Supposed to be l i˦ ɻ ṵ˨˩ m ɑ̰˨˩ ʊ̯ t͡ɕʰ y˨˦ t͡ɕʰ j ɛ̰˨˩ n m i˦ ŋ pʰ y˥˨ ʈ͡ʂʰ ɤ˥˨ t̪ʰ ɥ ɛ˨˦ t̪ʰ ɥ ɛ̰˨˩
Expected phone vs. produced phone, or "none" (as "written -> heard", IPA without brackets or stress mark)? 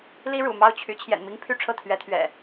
ɑ̰˨˩ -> ɑ˥˨